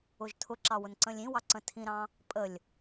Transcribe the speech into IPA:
ʊʒtʰʊǁɑ wʊnǀə̃lʲĩwɑ ǀə̃tʰĩɾɑ̃ | pʼəlʲ

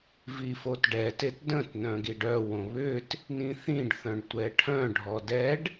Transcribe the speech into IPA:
vifotɖɛtet də̃tnœ̃ ɡiɖœwõ βʏt | nĩθĩɖθœ̃ɖ tʷɛʈʰœ̃ɖʱɔ dɛɖ

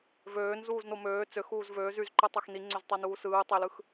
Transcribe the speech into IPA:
vøːn zuːznomøː t͡søx uːzvøːz yzǃɯtˤɑx niŋ͡ǀøztˤɑnuː sɯːtˤelɯx

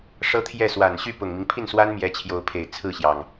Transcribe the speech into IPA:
ʂɤ˥t̪ʰjɛ˥˩ swa˨˩nɕy˥˩ pʊ˨˩ŋmi˦ŋpʰi˥˩nswa˥n mjɛ˧˥t͡ɕʰjo˧˥ʊ̯pʰe˨˩ɪ̯ t͡sʰɹ̩˥˩ɕjɑ˩ŋ

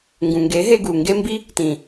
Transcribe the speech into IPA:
ŋɡũ˨ŋɡe˨˦ɦe˧ɡu˨ ŋɡe˦mbi˦ | tĩ˨

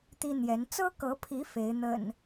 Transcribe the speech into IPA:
t̪i˦n̪jɛ˨˦n t͡sɤ˦kɤ˨˦pʰi˨˦ fe˨˦ɪ̯n̪ə̰˨˩n

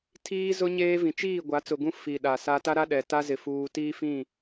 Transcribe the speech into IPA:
tʰiː˦zʊ˦ ɲeː˦vĩ˨ t͡ʃiː˦˨ ɡʷa˨˦t͡sʊ˨ɡũ˦ fi˨ ɗa˨sa˦ ta˦ɾa˦ɗɛ˨ta˦ zɪ˦fuː˦ tiː˦fĩ˦˨

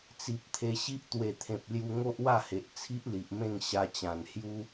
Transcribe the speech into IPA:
t͡si˨p̚t̪ʰe˧ɕi˦ʔ t̪we˨˩t̪ʰẽ˨p̚lju˧ ŋo˦ʔwa˥˧he˨ʔ t͡sʰi˦ʔli˨ʔmẽ˥˧ŋ ɕa˧t͡ɕã˨˩nhju˦

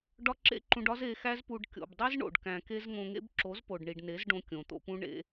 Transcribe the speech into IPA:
ɖɒ˦ǁḛ˦ǃũ˧ɖɒ˦z e˧xæ˦zpu˧ɖ kʲo̰˨bdˤi˦zɳo̰˨ɖ kæ̃˨ke˧z ŋõ˧ŋḛ˦b ǁo˨˦zpo˨ɖɳi˨ɖne˨˦z ɖõ˧kʲõ˨t̪o̰˧pũ˦ ɳḛ˧

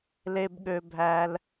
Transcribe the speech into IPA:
le˩bɠø˩bʱæ˩l

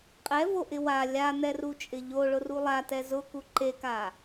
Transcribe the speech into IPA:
qʼɛvoʔɪ wa lʲan̪ɛrut͡ʃʼɪ ʎoɭʊru lˠatɛ zʊku ǃeka

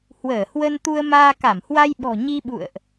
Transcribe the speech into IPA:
hwəː˧˩hwə˧nt̪u˧ə̯maː˧ ka˧˩mhwa˧jɓɔ̤˨˩ ɲi˧ɓṵ˧˨ə̯ʔ

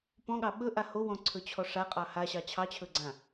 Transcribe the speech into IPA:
pɔ̃ɠɑ ɓɵʔa howɔ̃ǀʰɵt͡ɕʰɔ ʂaqʼɑ haɕɑ t͡ɕʰɑt͡ɕʰɵɡ͡ǀã

